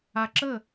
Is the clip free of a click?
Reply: no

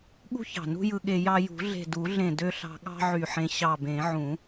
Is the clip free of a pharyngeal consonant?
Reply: no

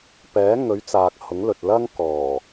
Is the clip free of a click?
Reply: yes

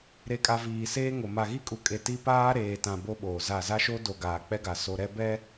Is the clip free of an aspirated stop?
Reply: yes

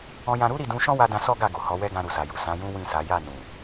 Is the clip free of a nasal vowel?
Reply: no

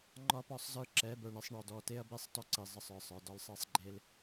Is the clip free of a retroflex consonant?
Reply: no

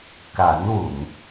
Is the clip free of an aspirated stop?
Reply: yes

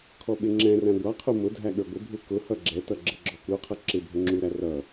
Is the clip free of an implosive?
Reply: no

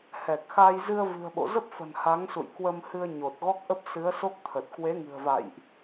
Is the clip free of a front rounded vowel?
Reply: yes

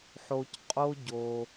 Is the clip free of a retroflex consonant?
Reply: yes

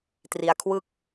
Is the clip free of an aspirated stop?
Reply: no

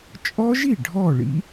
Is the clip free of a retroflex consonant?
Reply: no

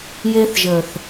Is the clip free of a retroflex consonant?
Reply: yes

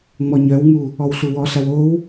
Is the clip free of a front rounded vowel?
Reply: no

